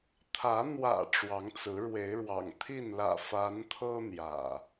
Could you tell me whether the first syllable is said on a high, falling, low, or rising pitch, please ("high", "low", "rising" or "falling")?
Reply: rising